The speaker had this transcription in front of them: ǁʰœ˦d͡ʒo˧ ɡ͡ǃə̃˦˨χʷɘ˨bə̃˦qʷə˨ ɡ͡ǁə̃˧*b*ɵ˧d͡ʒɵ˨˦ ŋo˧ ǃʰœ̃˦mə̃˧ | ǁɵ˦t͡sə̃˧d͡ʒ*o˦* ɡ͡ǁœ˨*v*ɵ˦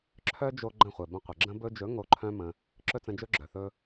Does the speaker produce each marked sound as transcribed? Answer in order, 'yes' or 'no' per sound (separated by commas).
yes, no, no